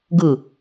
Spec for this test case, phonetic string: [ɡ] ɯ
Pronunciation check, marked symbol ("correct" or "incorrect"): correct